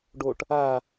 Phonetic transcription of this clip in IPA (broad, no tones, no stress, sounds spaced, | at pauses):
ɖ o ʈ | a